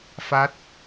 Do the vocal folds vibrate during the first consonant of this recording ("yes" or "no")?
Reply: no